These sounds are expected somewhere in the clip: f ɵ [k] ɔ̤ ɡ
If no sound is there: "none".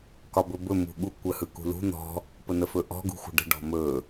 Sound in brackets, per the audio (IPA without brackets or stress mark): ʔ